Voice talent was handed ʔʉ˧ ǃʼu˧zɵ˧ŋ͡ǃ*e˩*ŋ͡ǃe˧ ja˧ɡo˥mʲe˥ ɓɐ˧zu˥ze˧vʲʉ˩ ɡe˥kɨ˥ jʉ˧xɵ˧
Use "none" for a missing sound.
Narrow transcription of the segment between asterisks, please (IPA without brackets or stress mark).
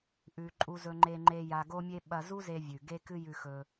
e˧